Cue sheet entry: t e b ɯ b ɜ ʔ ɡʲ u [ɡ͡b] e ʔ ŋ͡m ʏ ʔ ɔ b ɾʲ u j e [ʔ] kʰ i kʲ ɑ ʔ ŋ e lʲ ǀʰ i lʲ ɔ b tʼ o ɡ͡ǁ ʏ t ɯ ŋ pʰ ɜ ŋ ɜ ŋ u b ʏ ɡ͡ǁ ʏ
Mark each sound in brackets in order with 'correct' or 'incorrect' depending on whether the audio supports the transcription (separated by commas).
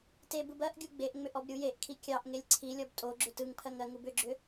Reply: correct, correct